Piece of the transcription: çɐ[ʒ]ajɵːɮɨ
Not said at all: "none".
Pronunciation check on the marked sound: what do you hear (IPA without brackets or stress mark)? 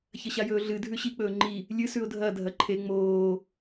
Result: ɕ